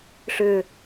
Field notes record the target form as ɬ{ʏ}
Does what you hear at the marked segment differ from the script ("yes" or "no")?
no